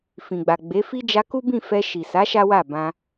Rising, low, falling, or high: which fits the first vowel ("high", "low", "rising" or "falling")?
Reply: low